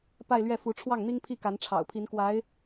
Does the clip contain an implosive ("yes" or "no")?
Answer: no